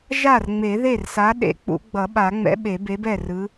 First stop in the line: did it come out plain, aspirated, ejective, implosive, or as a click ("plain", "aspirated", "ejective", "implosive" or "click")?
implosive